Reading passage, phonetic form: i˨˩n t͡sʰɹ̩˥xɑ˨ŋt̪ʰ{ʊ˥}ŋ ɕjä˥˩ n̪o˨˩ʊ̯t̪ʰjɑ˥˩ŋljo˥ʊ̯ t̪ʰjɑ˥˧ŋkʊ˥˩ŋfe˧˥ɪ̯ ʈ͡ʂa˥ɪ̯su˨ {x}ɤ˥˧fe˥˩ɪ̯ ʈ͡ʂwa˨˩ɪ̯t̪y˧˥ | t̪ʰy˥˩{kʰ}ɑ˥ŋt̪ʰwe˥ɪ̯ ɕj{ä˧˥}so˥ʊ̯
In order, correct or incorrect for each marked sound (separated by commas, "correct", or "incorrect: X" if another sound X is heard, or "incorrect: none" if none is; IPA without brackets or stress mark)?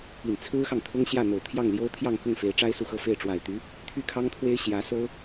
correct, correct, correct, correct